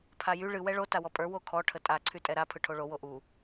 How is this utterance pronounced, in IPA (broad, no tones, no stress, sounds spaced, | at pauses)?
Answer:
pʰ a j y ɭ ɨ w ɛ ɭ o t a w ɔ pʼ ə˞ w o kʰ ɔ ʈʰ ə tʼ a ǀʰ y tʼ ɛ ɾ a pʰ ɯ ʈʰ o ɭ o w o ʔ u